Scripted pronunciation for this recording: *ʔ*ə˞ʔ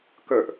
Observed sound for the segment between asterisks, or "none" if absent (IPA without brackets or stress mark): k